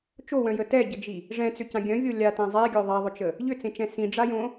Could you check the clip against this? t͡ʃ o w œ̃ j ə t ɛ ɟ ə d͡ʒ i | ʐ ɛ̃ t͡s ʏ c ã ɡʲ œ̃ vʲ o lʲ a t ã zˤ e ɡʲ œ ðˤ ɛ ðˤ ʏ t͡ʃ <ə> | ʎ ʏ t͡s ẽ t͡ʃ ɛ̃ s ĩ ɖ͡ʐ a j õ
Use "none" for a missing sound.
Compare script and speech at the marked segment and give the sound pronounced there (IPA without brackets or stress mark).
ə